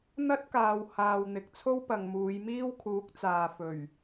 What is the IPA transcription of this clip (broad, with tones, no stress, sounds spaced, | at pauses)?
n̪ ɐ˥ t̚ k aː˨ w h aː˨ w n̪ ɪ˨ k̚ t͡sʰ o˥ w p ɐ˨ ŋ m uː˨˧ j m iː˥ w kʰ uː˨˥ k̚ t͡s aː˨ f ɵ˨˩ ɥ